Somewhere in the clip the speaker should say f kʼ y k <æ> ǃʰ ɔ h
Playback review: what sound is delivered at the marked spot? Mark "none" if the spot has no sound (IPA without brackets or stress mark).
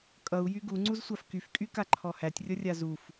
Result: a